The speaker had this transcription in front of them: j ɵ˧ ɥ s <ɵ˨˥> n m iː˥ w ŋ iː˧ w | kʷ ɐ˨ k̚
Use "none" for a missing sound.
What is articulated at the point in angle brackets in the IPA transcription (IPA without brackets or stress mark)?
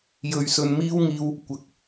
ɵ˧